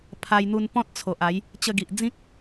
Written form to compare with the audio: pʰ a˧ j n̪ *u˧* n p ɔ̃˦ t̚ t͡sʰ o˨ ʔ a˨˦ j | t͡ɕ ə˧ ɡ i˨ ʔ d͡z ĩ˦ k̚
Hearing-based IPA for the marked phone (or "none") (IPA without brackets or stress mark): u˧